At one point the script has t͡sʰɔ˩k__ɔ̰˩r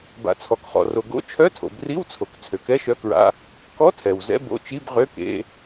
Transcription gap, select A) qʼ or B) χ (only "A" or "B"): B